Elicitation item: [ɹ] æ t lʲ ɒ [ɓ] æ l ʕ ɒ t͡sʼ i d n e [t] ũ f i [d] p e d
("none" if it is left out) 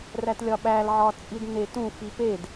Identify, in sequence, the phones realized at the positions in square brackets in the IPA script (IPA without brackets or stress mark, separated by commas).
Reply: r, ɓ, t, none